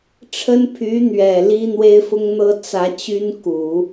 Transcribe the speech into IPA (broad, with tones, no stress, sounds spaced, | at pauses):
ʈ͡ʂʰ ə˥ n pʰ y˧˥ n̪ ɥ ɛ˨˩ l i˥ n̪ w e˥ ɪ̯ f ʊ˥ ŋ n̪ ɤ˥ t͡s ä˧˥ t͡ɕ y˥ n k u˨˩˦